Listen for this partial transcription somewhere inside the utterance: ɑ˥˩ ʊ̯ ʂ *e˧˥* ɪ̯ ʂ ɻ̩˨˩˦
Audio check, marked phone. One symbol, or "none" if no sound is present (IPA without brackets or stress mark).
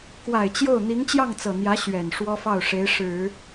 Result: e˧˥